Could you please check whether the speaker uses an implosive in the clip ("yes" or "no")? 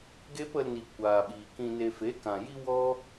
yes